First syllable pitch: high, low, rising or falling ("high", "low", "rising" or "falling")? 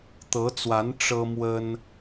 rising